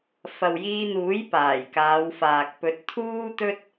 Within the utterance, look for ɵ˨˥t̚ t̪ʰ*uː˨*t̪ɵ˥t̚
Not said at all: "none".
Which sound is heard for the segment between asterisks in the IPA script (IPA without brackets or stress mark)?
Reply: uː˥